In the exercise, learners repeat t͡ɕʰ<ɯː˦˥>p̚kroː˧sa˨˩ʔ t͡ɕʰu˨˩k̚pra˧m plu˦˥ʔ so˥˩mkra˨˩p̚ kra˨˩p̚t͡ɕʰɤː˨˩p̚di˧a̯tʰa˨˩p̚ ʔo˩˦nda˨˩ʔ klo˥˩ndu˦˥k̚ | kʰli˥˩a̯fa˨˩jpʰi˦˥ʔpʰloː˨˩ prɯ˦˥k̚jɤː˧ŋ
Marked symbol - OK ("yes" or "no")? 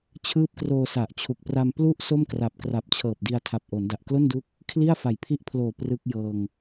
yes